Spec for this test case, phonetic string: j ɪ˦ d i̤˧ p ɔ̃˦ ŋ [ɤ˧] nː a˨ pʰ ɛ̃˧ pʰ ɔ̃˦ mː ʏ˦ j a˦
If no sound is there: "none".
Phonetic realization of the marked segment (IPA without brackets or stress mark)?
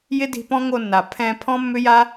o˧